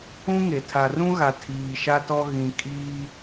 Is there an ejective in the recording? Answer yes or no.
yes